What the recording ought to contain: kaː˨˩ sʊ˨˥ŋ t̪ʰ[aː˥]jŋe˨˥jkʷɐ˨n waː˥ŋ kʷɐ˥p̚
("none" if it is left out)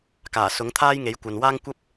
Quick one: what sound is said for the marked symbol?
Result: aː˥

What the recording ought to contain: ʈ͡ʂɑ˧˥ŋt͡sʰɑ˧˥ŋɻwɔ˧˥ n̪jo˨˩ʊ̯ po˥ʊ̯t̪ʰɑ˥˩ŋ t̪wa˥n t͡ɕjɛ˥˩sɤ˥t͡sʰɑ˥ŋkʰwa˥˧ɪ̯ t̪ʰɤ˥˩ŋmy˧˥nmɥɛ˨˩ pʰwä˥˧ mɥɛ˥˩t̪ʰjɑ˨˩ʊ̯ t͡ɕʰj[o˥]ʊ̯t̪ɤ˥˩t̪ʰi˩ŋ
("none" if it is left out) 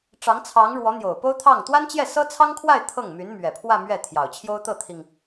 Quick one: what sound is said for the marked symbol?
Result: o˥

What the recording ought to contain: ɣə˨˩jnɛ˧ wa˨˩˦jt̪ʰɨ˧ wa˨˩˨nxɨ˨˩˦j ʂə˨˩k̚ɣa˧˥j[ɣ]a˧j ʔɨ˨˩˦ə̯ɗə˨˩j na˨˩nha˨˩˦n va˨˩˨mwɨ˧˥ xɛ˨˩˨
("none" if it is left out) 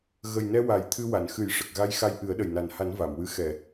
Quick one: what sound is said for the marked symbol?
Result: x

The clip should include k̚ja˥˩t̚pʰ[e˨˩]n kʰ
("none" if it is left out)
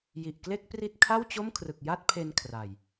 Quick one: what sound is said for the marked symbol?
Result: e˧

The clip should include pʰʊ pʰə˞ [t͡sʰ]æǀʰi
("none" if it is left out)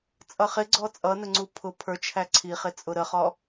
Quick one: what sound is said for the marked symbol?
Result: t͡ʃʰ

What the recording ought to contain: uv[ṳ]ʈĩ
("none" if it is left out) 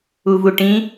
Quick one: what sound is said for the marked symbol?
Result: u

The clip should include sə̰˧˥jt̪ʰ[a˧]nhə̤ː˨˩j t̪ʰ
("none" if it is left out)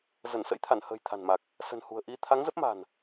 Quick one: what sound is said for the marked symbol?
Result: a˧˩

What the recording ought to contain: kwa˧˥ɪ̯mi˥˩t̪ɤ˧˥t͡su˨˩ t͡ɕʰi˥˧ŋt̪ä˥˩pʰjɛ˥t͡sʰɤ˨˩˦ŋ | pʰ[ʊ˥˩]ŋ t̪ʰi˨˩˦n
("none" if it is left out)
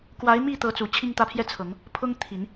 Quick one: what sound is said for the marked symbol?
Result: ʊ˥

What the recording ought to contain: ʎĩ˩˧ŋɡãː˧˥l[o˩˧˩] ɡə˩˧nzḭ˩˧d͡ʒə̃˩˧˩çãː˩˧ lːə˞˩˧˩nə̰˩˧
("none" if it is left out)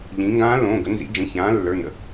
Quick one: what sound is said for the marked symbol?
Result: õ˩˧˩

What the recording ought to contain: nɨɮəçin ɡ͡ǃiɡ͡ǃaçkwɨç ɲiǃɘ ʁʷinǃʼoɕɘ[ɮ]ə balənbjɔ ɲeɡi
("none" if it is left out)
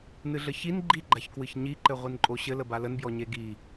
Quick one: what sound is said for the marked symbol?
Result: l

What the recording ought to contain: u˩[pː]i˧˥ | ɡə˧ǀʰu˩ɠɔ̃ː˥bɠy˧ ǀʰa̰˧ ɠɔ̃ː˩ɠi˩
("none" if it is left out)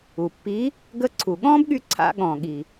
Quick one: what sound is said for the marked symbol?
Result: pː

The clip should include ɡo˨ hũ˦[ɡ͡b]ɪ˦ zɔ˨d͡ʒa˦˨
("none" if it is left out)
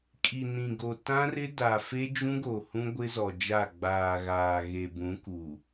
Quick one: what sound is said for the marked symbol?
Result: ɡʷ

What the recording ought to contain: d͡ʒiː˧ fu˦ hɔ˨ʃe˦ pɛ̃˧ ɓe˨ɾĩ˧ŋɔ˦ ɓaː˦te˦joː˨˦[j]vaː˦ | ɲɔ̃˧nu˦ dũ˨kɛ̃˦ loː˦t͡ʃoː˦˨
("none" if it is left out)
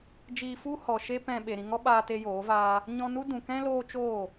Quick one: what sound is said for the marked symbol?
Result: none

